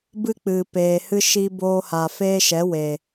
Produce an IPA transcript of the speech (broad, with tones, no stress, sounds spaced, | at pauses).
b ɨ˦ k͡p ɨ˨ p eː˨ h ɨ˦ ʃ i˧ b oː˧ h a˨ f eː˦ ʃ ɛ˨˦ w e˨